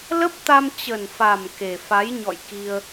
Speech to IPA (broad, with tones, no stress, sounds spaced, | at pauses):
l ə˦˥ p̚ t̪ a˧ m t͡ɕ ə˨˩ n f a˨˩ m k e˨˩ f a˨˦ j ɲ ɔ̰˧˨ j k i˧ ə̯